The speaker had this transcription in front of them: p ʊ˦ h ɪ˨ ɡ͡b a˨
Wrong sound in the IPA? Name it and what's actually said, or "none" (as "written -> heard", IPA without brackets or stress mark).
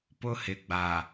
none